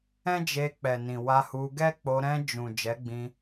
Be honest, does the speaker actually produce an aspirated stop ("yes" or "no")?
no